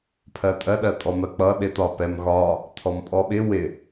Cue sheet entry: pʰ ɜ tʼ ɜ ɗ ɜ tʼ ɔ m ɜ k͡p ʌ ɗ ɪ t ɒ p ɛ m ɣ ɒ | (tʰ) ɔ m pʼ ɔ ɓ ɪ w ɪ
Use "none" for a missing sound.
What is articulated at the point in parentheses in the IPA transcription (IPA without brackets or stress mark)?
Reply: tʰ